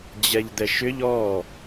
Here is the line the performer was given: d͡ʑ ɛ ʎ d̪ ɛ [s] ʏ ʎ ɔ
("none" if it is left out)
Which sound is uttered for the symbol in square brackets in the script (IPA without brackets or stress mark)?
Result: ʃ